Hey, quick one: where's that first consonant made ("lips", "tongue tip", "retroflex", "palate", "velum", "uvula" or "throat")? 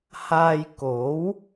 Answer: throat